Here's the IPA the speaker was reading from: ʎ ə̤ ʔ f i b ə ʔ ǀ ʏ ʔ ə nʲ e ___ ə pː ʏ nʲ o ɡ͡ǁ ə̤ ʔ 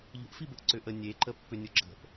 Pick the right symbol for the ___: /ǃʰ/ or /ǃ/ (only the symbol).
ǃ